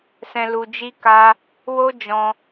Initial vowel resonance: nasal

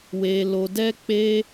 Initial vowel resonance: oral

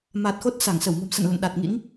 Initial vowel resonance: oral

